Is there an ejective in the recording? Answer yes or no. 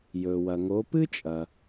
yes